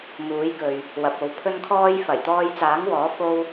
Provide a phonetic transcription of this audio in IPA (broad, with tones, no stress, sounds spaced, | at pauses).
m uː˨˥ j k ɵ˨ ɥ | w ɐ˨ p̚ o˨˧ w pʰ ɵ˥ n kʰ ɔː˥ j f ɐ˨˩ j t̪ ɔː˧ j t͡s aː˨˥ ŋ w ɔː˨˥ f o˥ w